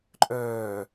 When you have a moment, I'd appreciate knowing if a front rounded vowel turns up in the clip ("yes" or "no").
yes